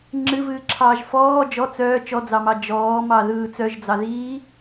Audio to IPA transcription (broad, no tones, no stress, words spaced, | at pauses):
ŋ͡ǁɨvɨːǁʰɑːʒ fɔː d͡ʒɔ t͡sœː t͡ʃɔd͡zɑmɑ d͡ʒɔːmɑðɯː t͡sœʒd͡zɑðiː